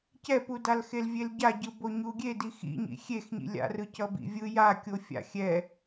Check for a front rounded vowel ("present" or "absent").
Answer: absent